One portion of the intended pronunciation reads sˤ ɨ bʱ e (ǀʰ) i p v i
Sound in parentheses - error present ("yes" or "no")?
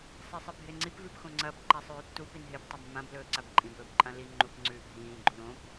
yes